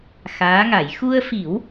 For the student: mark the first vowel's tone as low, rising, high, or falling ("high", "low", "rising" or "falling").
rising